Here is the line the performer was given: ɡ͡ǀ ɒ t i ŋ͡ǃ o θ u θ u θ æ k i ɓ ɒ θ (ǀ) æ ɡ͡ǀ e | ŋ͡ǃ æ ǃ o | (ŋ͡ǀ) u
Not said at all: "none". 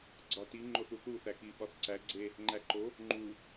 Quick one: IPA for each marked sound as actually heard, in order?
ǀ, ŋ͡ǃ

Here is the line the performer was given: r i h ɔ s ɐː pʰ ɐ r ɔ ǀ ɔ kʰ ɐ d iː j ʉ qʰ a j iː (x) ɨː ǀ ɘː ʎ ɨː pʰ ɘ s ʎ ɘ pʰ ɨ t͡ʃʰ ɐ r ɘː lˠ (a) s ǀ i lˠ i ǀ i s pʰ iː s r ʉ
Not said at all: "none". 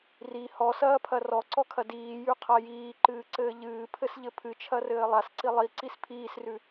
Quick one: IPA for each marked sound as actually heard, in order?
ǃ, a

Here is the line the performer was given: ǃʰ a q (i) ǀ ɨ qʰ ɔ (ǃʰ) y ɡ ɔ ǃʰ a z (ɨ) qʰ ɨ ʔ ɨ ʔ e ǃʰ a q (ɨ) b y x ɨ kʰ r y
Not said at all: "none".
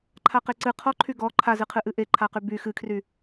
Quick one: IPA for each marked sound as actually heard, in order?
e, ǃʰ, ɨ, y

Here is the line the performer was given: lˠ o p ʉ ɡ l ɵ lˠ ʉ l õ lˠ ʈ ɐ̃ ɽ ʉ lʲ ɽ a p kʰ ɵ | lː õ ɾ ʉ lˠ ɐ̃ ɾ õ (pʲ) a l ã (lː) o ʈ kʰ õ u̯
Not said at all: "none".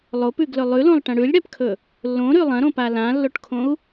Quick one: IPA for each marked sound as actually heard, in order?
p, lː

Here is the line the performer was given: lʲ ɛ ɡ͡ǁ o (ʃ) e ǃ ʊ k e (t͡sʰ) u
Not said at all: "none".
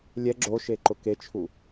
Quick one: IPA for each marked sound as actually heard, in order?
ʃ, t͡ʃʰ

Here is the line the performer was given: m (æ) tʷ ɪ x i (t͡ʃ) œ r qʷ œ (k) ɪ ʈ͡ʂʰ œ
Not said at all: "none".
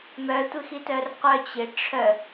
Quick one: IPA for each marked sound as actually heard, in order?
œ, t, t͡ɕ

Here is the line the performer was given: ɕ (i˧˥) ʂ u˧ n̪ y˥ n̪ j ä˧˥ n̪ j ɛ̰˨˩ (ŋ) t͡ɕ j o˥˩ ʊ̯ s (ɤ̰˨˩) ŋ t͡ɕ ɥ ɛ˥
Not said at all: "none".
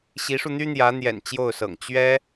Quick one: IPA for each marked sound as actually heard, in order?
i˧˥, n, ɤ̰˨˩

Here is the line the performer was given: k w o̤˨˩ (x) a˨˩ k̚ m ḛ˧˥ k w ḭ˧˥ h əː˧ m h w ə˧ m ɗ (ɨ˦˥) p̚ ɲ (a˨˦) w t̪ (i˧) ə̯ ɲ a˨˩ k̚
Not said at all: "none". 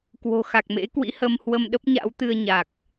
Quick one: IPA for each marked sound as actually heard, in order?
x, ə˦˥, a̰˧˥, ɨ˧

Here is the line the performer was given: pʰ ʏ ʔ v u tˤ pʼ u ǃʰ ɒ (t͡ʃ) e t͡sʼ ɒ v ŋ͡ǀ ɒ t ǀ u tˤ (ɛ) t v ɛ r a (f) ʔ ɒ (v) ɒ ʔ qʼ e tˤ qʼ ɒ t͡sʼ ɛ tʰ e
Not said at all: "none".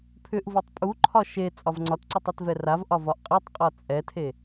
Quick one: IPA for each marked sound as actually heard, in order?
ʃ, e, v, v

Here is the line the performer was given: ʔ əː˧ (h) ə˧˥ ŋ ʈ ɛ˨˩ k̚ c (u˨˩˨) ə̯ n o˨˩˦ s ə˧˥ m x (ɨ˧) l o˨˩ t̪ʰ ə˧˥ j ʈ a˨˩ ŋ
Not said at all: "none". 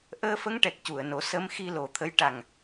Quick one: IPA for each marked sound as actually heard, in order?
f, u˨˩˨, i˧

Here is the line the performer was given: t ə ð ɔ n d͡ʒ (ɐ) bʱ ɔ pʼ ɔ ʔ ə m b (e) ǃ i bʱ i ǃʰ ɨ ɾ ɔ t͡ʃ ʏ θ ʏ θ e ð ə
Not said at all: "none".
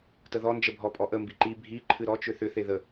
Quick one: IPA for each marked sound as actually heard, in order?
ə, i

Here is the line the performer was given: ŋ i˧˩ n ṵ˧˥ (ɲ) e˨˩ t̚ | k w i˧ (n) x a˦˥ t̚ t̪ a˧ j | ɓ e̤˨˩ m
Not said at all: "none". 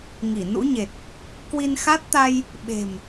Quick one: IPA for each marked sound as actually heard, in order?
ɲ, n

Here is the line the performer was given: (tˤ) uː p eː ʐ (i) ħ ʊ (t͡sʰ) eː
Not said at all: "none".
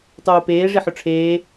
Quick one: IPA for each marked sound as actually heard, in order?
tˤ, i, ʈ͡ʂʰ

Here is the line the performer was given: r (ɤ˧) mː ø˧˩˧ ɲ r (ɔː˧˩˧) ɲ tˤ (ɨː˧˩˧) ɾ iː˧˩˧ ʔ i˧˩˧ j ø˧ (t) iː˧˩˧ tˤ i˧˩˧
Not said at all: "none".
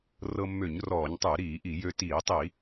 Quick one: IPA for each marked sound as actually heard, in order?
ɤ˧, ɔː˧˩˧, ɨː˧˩˧, t

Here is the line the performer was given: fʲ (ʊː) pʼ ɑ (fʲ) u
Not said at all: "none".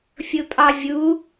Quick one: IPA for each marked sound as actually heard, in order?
ʊ, vʲ

